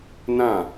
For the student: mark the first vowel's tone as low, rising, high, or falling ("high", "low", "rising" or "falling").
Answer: falling